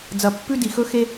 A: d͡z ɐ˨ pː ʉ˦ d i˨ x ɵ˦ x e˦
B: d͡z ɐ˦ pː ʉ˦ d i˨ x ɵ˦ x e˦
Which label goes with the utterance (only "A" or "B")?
A